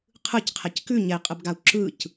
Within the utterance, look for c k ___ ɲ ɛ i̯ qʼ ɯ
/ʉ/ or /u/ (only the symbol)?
ʉ